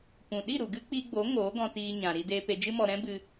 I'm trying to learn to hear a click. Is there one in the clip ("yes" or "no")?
no